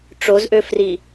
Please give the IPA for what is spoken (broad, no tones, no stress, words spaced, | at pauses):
ʈ͡ʂozʔøfri